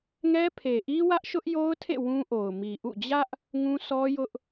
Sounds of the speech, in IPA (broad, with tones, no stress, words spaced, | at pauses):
ŋɛ˦pʰe˨ʔi˦ wä˦ʔʃʊ˦ʔjo˦ʊ̯tʰḛ˦˨ wũ˦ʔo˨ʊ̯ mi˨ʔṵ˦˨ d͡ʑä˦ʔ | ŋũ˦sʰɔ˦jʊ˦ʔ